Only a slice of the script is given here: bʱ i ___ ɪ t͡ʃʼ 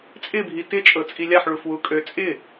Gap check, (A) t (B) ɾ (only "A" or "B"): A